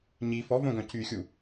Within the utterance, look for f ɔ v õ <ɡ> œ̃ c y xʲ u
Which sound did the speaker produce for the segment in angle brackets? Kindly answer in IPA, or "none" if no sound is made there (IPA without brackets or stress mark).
ɡ